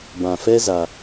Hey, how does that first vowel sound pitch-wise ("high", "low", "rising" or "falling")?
low